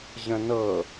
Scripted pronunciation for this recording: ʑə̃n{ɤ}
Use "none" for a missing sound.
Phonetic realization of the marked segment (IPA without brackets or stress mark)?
ɤ